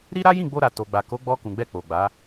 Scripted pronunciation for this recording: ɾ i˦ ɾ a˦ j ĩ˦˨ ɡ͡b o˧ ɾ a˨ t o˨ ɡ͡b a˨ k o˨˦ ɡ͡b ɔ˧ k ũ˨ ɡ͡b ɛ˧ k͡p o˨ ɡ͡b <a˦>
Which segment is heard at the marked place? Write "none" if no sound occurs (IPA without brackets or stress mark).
a˨˦